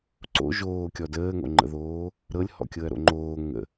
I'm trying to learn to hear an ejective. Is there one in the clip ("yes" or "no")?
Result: no